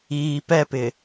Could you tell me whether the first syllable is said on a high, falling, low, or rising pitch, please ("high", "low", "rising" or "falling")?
low